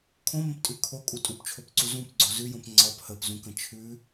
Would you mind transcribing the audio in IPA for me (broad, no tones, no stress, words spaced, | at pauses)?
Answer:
kʰõmə̃ptʼʉ kʰokʼu tʼupt͡ʃʰopǀu zũpɡ͡ǀo zʉjõp ŋ͡ǀɒp həpzũkə̃ t͡ʃʰʉ